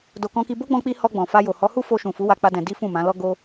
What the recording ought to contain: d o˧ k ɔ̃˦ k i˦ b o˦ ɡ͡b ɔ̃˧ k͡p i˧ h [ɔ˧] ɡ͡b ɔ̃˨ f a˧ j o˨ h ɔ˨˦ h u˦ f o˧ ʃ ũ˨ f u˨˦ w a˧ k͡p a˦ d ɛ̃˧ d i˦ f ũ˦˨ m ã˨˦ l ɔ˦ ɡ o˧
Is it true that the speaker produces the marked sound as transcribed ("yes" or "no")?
yes